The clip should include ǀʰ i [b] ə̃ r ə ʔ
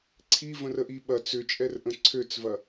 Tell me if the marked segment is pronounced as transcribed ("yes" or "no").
no